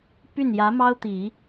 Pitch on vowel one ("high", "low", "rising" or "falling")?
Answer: falling